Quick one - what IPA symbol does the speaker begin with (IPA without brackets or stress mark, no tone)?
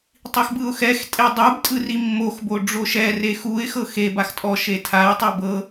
tˤ